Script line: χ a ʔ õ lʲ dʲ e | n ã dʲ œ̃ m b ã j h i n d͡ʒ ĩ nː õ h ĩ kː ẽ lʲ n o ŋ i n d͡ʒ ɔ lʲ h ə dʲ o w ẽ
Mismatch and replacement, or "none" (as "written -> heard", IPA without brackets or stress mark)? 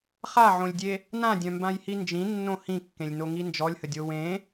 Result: ʔ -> ʕ